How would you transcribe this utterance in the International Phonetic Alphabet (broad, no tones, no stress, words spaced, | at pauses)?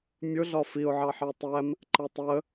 mʲʊ ɮɒfiʊ̯ʕɑ ħɑtˤæm | ǃʌtˤə